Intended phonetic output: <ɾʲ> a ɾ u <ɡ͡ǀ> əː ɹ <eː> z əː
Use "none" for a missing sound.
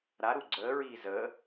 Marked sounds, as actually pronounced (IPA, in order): ɾ, ɡ͡ǀ, iː

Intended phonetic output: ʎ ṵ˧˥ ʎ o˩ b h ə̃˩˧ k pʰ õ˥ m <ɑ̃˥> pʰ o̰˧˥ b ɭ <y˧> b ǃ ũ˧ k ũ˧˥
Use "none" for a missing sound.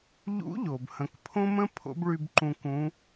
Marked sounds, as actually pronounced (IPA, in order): ə̃˥, y˧

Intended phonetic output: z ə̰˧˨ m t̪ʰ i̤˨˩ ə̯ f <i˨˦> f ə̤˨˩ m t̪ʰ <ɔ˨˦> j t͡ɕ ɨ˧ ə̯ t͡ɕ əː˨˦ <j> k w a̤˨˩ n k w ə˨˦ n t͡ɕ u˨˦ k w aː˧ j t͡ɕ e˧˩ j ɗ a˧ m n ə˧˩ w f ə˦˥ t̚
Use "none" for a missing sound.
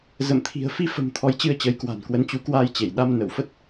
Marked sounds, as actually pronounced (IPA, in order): i˧, ɔ˨˦, j

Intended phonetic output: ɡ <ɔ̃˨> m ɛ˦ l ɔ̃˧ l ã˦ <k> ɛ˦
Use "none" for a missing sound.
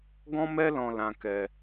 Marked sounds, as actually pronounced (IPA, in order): ɔ̃˦, k

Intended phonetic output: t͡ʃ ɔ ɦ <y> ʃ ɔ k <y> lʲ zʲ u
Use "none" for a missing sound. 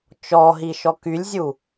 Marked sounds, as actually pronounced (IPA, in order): i, y

